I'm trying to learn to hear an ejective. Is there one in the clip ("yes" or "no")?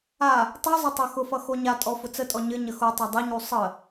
yes